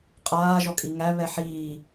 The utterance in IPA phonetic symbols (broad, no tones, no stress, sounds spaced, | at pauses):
qʼ aː ʒ ɔ kʼ i ŋ æ β ɛ ħ iː